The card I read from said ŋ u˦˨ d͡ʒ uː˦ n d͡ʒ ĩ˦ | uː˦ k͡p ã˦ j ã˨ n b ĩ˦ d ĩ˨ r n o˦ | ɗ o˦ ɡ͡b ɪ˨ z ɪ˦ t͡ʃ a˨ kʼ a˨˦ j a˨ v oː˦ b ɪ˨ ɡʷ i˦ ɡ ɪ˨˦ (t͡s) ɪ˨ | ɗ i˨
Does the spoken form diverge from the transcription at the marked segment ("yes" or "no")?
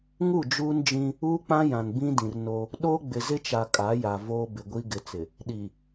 no